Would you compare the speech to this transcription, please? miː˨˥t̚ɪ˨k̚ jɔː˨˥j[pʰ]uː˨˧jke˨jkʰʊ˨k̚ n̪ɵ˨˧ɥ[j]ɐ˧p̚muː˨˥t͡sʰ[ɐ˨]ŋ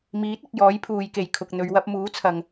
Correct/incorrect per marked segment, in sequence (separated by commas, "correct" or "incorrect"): correct, incorrect, correct